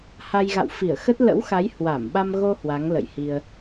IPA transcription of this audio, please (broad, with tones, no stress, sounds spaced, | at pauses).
h a˧ j ɣ a̰˧˨ w f i˧˩ ə̯ x ə˦˥ t̚ l ə̰˧˥ w x a˨˦ j h w a˧˩ m ɓ a˧ m ɣ o˧ h w a˨˦ ŋ l ə̰˧˨ j h i˧ ə̯